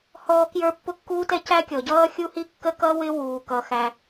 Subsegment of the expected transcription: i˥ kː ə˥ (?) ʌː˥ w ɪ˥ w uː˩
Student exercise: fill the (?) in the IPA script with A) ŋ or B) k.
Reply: B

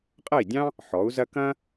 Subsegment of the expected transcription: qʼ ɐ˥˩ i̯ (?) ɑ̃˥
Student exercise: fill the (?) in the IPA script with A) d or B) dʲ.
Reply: B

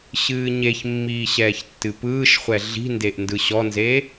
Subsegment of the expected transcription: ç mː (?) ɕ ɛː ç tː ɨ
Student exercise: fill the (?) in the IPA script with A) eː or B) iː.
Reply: B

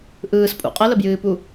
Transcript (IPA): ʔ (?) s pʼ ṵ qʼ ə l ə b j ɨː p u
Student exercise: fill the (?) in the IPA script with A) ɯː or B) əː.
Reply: A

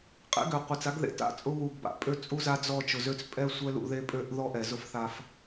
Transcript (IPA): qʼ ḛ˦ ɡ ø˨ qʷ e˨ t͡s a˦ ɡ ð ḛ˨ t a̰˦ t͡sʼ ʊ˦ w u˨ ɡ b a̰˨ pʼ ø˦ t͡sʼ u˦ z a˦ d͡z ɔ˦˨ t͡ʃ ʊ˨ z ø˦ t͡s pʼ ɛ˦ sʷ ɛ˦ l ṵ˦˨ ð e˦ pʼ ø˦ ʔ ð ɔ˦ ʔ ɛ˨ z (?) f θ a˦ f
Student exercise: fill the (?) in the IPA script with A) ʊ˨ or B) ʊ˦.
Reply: B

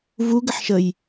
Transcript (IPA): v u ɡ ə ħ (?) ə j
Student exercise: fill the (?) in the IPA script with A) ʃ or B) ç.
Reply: A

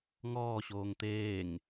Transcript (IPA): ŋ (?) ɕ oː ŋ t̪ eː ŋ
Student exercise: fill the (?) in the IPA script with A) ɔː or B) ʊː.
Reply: A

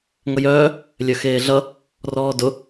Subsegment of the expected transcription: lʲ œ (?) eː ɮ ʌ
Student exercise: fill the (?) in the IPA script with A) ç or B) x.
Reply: B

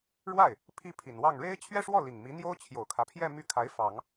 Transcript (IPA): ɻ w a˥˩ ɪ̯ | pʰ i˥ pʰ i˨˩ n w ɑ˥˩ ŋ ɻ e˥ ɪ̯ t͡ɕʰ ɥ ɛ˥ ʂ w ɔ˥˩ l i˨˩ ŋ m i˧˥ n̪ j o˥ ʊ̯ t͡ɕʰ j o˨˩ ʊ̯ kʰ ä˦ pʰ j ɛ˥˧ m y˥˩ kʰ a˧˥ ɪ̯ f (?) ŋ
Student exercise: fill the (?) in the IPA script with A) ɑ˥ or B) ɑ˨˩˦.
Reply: B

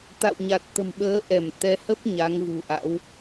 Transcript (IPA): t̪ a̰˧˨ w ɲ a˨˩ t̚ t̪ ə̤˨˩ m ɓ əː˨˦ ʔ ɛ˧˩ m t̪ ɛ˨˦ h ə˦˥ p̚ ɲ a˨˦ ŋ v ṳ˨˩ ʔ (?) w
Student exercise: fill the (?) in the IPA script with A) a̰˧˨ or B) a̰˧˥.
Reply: B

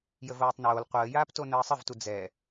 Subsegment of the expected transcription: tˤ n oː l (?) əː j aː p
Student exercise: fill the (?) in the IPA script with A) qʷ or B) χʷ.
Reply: A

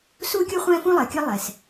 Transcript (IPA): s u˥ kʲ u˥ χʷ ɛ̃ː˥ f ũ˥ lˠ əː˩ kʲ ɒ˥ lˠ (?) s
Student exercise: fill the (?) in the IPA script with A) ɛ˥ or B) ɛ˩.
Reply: B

